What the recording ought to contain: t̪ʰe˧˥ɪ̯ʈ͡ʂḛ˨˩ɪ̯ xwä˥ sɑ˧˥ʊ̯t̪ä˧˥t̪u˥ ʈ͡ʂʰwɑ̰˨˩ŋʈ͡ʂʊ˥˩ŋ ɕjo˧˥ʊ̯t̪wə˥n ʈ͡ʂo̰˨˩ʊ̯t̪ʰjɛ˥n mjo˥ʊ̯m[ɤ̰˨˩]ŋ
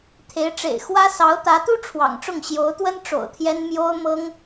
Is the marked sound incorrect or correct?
incorrect